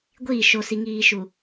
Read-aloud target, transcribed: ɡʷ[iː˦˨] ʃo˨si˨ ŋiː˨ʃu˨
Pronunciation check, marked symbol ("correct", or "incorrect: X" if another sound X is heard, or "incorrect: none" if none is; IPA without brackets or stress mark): correct